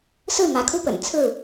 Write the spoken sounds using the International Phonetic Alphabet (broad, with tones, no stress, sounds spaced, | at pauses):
s ɹ̩˥˨ m ä˨˦ kʰ u˦ p ə̰˨˩ n t͡sʰ ɹ̩˥˨